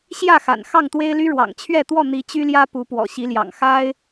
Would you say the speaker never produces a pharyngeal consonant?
yes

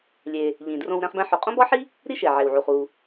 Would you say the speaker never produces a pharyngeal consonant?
no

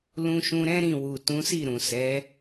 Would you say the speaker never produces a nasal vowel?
no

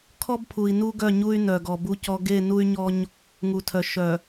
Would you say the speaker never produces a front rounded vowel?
no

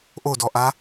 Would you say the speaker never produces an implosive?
yes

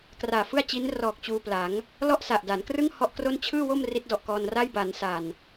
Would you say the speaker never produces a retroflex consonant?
yes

